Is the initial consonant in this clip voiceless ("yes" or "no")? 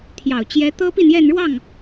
yes